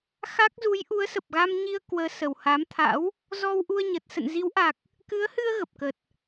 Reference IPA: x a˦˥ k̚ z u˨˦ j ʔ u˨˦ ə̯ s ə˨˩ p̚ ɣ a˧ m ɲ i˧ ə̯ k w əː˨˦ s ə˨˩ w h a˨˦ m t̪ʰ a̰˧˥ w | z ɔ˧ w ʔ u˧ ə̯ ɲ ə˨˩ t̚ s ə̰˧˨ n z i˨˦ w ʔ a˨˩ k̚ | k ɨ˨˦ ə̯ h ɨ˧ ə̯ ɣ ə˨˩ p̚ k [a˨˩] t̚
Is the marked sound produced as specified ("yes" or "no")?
no